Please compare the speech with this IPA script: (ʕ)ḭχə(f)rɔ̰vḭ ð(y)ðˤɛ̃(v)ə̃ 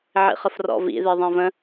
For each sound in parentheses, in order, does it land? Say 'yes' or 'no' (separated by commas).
yes, yes, no, yes